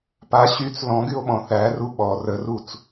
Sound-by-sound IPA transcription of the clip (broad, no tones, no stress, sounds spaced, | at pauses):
p a ɕ y t͡s l ɔ̃ ɡ y o̯ ɓ ɔ̃ θ æ r u ɓ ɔ r ə r u t͡s